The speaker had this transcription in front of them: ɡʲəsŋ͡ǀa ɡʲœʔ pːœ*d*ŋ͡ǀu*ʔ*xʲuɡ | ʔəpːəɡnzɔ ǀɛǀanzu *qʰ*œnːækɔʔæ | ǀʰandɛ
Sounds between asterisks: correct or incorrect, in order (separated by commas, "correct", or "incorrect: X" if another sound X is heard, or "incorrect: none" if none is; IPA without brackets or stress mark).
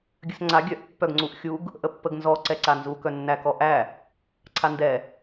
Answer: incorrect: ɡ, correct, incorrect: k